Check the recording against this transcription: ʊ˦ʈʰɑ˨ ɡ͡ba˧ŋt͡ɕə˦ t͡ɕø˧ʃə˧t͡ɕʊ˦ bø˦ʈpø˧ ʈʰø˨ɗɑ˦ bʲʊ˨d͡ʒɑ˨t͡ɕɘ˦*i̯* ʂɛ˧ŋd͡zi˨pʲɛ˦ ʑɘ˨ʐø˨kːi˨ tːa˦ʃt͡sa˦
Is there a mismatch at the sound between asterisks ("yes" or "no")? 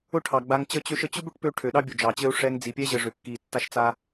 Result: yes